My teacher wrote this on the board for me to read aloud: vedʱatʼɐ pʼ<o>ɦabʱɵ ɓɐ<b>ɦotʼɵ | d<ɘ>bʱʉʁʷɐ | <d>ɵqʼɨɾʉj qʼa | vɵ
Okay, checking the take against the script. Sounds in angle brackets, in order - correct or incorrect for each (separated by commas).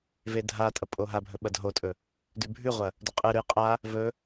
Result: correct, incorrect, incorrect, correct